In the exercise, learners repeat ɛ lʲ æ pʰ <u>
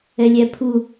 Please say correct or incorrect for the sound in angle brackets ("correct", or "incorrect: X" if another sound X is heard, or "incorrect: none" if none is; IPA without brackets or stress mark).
correct